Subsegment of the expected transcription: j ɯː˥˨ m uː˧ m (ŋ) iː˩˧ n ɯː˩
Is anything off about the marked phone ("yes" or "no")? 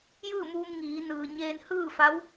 no